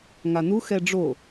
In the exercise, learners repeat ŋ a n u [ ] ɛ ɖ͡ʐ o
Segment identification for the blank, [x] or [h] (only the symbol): x